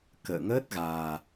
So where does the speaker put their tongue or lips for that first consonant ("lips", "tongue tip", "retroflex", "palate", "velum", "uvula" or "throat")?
velum